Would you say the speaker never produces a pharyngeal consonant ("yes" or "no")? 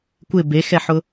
no